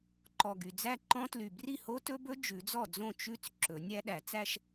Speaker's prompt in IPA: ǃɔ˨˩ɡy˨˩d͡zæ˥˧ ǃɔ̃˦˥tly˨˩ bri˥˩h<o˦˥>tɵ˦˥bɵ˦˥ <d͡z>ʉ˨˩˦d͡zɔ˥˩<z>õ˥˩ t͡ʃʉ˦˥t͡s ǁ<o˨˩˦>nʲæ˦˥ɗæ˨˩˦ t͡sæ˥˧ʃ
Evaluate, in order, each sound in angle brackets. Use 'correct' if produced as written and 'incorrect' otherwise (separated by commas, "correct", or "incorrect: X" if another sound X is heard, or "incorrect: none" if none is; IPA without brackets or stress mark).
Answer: correct, incorrect: d͡ʒ, incorrect: d͡z, incorrect: ɵ˨˩˦